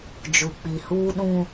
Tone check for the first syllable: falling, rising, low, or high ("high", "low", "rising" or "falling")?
low